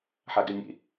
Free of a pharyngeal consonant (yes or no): no